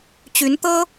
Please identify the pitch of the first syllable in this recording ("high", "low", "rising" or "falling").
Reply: rising